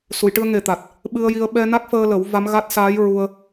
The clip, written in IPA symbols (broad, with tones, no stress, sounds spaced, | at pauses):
s u˨˩˨ j ʈ ɨ˧ ə̯ ŋ e˨˩ t̪ a˨˩ t̚ | ɓ ɨ˧ ə̯ j i˧ ə̯ ɓ ɛ˧ n a˦˥ k̚ f əː˧ l ə˨˩˦ w v a˧˥ m ɣ a˦˥ t̚ s aː˧˥ j ɹ u˧ ə̯